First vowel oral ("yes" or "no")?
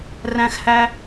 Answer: no